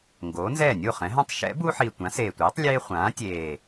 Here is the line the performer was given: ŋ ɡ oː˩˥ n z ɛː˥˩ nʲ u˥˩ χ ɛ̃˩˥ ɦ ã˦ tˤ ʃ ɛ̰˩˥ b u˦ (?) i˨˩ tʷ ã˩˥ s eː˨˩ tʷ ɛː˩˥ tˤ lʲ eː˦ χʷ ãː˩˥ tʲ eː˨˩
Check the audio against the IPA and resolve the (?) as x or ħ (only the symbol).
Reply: ħ